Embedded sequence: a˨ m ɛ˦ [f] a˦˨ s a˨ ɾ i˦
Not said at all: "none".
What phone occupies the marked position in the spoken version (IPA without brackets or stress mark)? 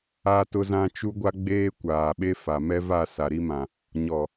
v